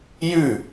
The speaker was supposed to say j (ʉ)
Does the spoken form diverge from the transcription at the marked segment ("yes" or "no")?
no